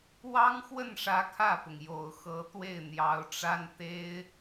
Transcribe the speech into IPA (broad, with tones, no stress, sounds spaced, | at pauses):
w ɑ˥ ŋ x w ə˥˩ n ʂ ä˧˥ kʰ ä˥˩ p ʊ˩ ŋ j o˨˩ ʊ̯ x ɤ˧˥ t̪ w e˥˩ ɪ̯ n̪ j ɑ˧˥ ʊ̯ ʈ͡ʂ a˥ n t̪ e˥ ɪ̯